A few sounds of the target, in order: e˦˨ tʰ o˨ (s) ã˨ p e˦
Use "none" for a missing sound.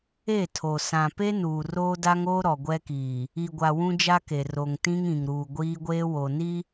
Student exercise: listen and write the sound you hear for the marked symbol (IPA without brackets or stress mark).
s